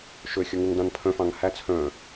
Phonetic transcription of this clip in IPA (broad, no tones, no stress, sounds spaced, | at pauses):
ʃ ø xʲ ɵ ŋ u ŋ d ɑ̃ n pʰ œ̃ f ɑ̃ ŋ h æ t͡sʰ œ̃